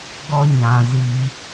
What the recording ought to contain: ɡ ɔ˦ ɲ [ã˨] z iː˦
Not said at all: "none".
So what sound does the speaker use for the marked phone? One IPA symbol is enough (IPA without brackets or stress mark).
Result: ã˨